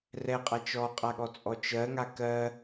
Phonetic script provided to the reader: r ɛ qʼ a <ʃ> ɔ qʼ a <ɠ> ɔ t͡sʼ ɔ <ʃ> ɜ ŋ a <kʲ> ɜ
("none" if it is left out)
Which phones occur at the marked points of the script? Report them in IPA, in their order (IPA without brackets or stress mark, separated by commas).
t͡ʃ, ɠ, t͡ʃ, k